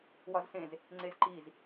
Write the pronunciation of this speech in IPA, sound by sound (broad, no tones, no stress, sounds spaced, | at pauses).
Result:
w ɒ z s ẽ z | ŋ͡ǀ e z ǃ i z